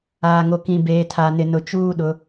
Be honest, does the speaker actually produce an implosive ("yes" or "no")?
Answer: yes